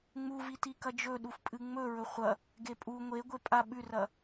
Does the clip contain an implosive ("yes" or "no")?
yes